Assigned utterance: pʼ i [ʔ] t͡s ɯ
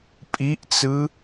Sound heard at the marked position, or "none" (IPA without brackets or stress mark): ʔ